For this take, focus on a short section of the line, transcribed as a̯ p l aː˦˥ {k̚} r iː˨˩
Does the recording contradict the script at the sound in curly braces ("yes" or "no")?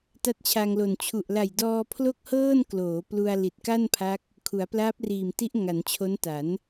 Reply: yes